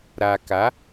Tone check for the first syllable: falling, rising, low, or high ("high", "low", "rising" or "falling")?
low